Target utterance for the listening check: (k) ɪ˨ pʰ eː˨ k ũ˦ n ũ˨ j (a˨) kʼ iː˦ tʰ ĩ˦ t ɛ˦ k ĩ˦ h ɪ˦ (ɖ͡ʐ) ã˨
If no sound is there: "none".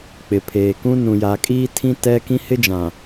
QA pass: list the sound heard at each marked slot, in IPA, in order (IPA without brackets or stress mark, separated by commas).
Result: k͡p, a˨, d͡ʒ